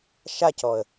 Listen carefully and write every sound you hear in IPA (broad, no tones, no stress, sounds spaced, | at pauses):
ʃ a c ɔ ə̯